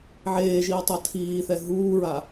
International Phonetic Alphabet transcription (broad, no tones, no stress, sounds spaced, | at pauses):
ʕ eː ʒ iː tˤ ʌ tʰ iː θ ɛ ɦ uː ɹ a